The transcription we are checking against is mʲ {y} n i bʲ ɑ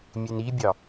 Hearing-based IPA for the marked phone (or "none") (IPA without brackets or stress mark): e